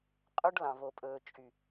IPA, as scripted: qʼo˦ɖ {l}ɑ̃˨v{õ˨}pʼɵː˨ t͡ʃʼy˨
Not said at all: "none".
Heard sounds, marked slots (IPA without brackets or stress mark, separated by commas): l, o˨